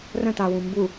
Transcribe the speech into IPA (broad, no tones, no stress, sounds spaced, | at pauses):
r ə̃ t a w ũ m b u